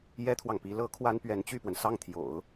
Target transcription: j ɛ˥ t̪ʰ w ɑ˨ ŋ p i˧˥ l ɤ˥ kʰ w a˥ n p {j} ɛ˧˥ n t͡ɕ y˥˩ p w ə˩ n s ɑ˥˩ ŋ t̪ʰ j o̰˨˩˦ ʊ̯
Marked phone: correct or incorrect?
incorrect